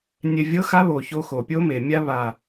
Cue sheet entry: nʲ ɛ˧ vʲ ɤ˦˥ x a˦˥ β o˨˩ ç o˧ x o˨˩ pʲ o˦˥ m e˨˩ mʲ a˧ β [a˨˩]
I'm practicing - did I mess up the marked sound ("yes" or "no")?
no